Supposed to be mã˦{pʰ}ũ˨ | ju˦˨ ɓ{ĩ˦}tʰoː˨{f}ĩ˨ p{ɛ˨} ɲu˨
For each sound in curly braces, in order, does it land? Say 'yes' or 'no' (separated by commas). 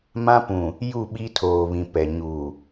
no, no, no, yes